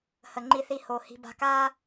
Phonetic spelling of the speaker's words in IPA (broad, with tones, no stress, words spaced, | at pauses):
hə˨ŋ͡ǃi˧θi˧ ho˨ hi̤˧ ba̤˧ka˦